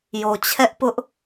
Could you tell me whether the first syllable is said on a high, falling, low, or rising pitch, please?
low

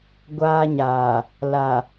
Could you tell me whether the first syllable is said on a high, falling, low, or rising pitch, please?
high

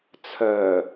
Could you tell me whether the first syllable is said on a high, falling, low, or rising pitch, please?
low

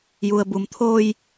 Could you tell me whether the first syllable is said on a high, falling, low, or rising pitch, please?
low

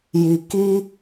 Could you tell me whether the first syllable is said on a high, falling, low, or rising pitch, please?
low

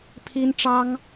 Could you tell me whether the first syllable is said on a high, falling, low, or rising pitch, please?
high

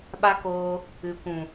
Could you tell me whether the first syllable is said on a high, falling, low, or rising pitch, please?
high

